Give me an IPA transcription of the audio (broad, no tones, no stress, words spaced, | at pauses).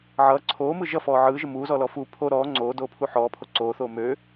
ʕʌː ǀʰoːmɯ ʒʌfɔː ʕɯːʒə muːzɔlɔ fu pʰo ɾɔː ŋ͡ǀoːdoːpʰu ħɔːpʰo ǀoːθoː møː